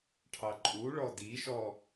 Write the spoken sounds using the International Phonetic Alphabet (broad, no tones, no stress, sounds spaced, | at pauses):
ʈʰ ɑ ǃʼ u ɭ ɔ d i ʃ ɔ